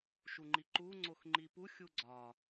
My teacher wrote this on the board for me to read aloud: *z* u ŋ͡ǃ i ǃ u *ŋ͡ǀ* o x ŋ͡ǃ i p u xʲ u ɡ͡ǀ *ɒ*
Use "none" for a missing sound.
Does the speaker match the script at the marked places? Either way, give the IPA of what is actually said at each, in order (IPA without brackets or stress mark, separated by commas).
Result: ʃ, ŋ͡ǀ, ɒ